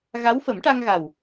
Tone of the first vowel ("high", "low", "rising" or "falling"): rising